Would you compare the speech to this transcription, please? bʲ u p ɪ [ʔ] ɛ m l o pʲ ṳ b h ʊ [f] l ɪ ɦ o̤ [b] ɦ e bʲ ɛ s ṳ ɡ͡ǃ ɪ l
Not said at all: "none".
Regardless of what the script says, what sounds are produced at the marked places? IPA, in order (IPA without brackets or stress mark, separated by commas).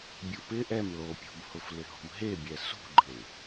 ʔ, f, m